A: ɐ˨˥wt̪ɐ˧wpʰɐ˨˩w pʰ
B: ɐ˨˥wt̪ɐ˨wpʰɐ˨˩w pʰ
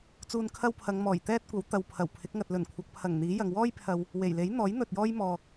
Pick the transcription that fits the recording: B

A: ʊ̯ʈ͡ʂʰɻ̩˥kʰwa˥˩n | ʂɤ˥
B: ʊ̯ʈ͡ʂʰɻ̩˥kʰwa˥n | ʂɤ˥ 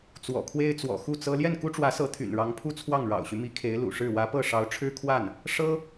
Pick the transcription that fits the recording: A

